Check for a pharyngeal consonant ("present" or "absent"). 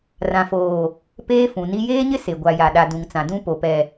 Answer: absent